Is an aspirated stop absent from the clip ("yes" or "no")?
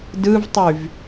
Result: yes